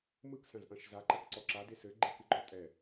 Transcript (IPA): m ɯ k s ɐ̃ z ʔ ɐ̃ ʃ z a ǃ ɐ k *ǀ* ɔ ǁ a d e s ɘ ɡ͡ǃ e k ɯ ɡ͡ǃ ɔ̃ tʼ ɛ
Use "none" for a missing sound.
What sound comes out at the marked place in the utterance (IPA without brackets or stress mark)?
ǀ